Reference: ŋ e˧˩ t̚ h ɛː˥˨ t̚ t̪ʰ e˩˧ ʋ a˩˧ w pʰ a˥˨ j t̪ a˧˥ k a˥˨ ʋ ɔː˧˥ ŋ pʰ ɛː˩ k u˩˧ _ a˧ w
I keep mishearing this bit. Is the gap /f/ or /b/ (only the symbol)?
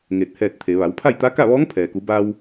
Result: b